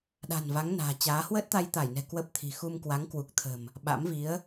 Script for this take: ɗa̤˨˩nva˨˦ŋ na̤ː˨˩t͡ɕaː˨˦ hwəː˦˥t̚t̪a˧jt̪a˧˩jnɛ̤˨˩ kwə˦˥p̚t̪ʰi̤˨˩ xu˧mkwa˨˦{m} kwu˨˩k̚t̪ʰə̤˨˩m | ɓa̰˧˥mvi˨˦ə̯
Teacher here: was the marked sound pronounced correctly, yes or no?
no